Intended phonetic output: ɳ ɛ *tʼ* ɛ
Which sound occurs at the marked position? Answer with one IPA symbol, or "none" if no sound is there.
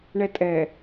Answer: tʼ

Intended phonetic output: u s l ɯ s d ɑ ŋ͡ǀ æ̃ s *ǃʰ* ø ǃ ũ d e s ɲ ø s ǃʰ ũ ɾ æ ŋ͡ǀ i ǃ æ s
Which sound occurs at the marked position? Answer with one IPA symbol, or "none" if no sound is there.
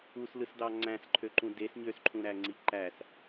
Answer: ǃʰ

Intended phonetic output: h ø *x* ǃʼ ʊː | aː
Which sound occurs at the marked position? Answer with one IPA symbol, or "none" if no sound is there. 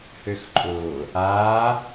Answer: x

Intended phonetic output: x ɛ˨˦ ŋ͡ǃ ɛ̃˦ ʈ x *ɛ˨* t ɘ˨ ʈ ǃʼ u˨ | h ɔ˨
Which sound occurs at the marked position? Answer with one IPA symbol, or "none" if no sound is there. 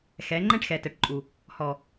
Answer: ɛ˨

